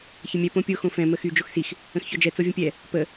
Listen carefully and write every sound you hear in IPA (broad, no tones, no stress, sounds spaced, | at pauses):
ç ə mʲ ɛ p õ pʲ o x õ f ɛ̃ m ə x y d͡ʒ o x s i x | ə̃ x ç ɔ d͡ʒ ɛ t͡s o vʲ ə̃ pʲ ɛ | p ə